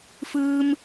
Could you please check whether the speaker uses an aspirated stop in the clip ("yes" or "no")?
no